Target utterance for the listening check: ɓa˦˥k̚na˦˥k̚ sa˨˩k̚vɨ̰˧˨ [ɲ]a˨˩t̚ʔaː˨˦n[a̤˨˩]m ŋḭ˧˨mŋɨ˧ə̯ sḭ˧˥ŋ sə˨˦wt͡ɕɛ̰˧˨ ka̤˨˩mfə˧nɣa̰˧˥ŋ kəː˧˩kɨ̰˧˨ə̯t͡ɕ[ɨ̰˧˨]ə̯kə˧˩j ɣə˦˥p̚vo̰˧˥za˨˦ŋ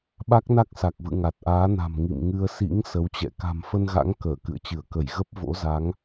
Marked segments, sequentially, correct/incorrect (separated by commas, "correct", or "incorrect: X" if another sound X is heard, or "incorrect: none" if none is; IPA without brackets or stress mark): incorrect: ŋ, correct, incorrect: ɨ˧˩